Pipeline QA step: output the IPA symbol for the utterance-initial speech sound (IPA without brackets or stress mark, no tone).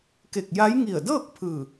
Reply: k